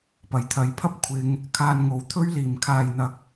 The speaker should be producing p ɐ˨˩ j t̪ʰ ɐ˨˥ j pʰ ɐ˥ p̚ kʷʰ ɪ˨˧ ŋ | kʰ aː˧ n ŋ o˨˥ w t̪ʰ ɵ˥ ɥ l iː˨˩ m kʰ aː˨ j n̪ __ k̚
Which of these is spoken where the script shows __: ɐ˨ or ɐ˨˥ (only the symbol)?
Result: ɐ˨